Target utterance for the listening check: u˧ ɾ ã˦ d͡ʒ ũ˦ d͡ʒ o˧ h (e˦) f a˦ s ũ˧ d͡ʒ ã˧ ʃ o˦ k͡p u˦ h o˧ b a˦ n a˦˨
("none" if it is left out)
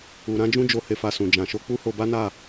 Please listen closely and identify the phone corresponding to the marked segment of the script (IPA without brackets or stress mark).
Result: e˦